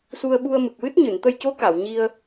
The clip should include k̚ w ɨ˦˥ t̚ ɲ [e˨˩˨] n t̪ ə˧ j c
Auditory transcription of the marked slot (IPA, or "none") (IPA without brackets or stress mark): ɨ˨˩˨